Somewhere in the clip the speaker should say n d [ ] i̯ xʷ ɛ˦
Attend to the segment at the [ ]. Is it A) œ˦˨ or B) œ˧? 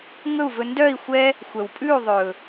A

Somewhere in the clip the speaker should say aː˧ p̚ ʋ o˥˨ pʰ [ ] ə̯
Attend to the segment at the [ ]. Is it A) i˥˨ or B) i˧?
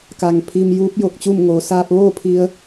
B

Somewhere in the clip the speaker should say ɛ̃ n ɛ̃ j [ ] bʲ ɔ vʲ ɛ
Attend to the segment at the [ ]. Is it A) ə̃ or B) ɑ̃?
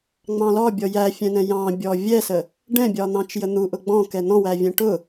B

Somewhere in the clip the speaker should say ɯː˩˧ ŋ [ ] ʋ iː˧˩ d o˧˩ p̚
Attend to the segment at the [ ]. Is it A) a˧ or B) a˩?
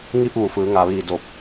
B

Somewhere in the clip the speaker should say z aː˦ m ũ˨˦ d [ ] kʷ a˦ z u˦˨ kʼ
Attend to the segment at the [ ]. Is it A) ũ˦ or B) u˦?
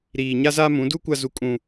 B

